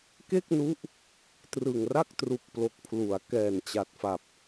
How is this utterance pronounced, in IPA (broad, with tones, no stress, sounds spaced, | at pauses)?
k e˥˩ k̚ n u˦˥ ʔ | t r ɯ˨˩ ŋ r a˥˩ k̚ t r u˨˩ k̚ p l o˨˩ k̚ pʰ l u˩˦ a̯ k ɛː˨˩ n t͡ɕ a˨˩ t̚ f a˨˩ p̚